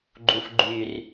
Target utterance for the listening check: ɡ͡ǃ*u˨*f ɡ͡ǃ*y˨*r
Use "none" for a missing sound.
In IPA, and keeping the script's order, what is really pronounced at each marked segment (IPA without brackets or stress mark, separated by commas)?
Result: u˨, y˨